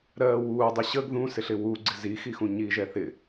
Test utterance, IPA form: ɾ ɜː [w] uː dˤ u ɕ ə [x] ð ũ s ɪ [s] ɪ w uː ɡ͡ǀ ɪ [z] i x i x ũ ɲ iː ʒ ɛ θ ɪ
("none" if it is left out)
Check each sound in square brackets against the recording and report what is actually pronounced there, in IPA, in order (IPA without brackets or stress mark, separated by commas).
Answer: w, ɡ, ɬ, z